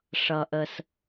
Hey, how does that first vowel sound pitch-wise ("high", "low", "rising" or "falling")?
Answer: low